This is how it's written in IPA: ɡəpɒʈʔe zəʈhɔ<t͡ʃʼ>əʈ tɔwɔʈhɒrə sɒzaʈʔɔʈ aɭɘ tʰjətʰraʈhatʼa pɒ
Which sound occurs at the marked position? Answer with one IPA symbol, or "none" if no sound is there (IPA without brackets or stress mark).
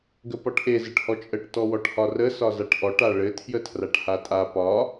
t͡ʃʼ